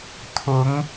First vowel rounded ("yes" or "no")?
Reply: yes